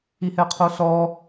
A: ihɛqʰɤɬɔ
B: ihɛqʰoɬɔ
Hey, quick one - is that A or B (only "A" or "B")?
B